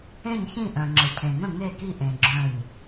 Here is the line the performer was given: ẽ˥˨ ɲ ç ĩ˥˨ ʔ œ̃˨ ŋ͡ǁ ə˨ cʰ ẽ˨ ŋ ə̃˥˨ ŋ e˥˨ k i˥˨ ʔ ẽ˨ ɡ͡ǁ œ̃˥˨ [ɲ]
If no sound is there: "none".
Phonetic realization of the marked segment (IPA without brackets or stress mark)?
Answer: ɲ